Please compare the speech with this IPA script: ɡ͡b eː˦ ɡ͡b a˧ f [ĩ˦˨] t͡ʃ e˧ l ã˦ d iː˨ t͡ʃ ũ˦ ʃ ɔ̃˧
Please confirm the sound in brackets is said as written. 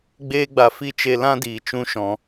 no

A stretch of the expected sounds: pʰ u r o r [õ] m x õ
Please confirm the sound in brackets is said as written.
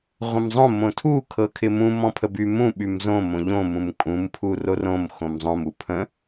yes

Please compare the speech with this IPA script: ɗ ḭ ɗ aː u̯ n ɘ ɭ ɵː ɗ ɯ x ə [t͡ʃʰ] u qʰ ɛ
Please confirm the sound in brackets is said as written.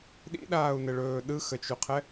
no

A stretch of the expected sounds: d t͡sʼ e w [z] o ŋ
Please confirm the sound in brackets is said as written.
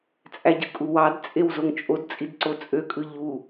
yes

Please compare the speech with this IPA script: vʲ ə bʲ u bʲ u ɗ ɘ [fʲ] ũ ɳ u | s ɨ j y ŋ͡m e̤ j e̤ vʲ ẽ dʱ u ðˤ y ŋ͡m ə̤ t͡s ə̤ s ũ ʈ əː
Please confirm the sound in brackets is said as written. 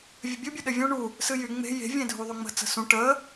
no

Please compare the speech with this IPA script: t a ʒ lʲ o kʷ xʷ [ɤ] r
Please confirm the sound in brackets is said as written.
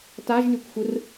no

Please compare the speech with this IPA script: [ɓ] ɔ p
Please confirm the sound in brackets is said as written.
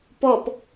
no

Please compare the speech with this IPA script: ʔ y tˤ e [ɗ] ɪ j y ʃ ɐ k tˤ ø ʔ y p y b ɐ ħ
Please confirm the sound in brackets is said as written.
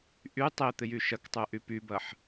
no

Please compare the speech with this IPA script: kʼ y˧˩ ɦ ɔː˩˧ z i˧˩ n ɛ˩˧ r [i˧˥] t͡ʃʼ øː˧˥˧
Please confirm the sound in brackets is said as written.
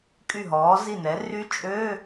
no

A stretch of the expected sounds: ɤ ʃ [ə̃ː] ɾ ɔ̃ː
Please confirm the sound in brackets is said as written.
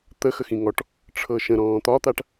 no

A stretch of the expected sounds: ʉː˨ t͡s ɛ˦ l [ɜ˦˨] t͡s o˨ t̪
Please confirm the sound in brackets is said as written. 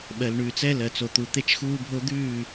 no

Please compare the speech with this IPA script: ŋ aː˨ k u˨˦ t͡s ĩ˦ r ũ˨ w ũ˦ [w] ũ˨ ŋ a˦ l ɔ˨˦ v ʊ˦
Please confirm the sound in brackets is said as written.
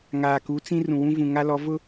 no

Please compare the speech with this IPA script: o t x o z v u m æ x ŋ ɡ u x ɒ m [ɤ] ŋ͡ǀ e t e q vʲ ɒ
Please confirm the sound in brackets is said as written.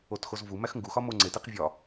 no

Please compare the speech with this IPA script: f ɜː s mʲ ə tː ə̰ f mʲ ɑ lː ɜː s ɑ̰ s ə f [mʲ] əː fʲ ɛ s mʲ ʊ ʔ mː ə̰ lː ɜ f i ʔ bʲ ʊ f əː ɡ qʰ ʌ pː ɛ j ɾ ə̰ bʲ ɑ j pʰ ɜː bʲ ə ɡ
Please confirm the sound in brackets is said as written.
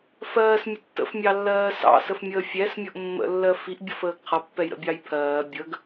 yes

